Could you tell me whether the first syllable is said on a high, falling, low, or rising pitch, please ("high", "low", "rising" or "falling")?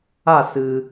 falling